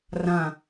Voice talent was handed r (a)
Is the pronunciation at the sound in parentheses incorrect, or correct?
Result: incorrect: ã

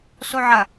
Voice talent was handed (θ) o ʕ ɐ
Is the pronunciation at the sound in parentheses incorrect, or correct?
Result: incorrect: s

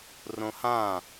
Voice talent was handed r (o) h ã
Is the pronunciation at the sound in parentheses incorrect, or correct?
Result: incorrect: õ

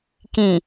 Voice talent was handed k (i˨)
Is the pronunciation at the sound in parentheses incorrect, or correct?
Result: incorrect: ĩ˨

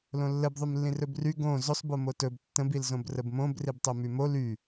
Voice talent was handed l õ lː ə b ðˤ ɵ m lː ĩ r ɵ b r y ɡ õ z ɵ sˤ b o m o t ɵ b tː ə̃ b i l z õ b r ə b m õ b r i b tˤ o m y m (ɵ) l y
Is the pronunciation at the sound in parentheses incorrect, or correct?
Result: incorrect: o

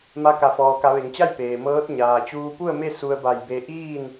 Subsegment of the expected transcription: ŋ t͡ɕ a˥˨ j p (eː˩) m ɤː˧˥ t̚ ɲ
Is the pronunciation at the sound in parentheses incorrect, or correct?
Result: correct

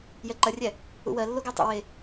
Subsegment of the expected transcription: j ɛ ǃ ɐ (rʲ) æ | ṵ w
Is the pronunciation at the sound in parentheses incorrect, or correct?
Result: correct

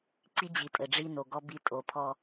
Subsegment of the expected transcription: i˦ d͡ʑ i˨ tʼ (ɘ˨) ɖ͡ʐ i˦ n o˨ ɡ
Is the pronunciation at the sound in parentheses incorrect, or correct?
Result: correct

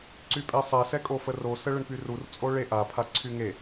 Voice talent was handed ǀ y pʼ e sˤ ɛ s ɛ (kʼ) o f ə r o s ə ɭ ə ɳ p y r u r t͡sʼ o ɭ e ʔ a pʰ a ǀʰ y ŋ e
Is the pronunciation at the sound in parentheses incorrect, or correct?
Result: correct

